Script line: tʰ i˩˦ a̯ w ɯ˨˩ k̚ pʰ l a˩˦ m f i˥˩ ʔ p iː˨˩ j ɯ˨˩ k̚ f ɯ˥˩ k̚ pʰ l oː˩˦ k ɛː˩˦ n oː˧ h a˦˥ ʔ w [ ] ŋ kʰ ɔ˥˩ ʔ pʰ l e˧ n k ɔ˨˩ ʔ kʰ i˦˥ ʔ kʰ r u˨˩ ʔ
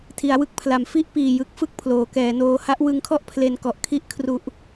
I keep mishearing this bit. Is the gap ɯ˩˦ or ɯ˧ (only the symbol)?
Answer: ɯ˧